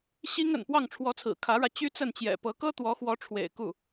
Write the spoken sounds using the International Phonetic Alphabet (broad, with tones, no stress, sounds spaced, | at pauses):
ɕ i˥ ŋ ə̰˨˩ n p w ɑ˥˩ ŋ ʈ͡ʂʰ w ɔ˧˥ t͡sʰ ɹ̩˨˩ kʰ ä˧˥ ɻ ä˧ t͡ɕ y˥ t͡s ə˥˩ n t͡ɕ j ɛ̰˨˩ p ɤ˧˥ k ɤ˥ t̪ w ɔ˧˥ x w ɔ˧˥ ʈ͡ʂʰ w ḛ˨˩ ɪ̯ k u˥˩